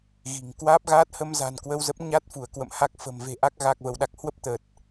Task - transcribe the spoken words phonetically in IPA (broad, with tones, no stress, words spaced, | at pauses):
ɣi̤˨˩ŋ kwaː˦˥p̚ɣaː˦˥t̚hə˧mza̤˨˩n kwə˧wzə˦˥p̚ ɲa˦˥t̚fu˧˩ə̯kwə̰˧˨m ha˦˥k̚ fə̤˨˩mve̤˨˩ʔa˦˥k̚ ɣa˨˩k̚və˧˩wɗa˨˩k̚hwə˦˥p̚ t̪ə˨˩t̚